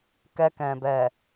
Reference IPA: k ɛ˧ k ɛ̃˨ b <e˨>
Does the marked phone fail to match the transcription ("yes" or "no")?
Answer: yes